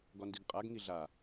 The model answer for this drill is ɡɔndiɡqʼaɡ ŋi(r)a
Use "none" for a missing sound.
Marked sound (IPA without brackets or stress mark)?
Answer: ɮ